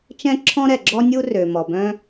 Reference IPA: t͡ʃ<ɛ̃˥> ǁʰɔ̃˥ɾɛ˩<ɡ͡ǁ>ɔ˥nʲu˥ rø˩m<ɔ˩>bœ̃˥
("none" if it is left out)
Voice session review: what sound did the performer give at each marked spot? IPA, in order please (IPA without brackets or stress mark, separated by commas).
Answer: ɛ̃˥, ɡ͡ǁ, ɔ˩